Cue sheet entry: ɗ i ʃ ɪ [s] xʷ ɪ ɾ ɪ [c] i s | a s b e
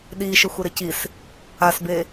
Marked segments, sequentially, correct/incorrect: incorrect: none, correct

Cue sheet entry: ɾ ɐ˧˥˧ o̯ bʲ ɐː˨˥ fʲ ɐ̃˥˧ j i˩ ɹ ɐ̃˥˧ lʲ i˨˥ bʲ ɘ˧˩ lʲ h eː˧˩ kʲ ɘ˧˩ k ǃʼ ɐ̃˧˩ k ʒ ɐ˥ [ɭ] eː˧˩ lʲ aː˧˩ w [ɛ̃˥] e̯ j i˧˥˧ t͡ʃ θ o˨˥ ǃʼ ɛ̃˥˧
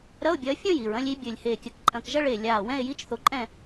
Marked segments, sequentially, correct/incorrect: correct, incorrect: ɛ̃˥˧

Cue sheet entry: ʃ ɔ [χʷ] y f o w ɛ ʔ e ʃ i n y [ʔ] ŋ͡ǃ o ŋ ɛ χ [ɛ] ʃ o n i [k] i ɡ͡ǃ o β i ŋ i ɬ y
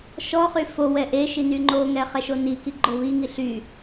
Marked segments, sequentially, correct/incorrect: incorrect: χ, incorrect: none, correct, correct

